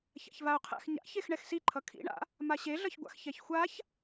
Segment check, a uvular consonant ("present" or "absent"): present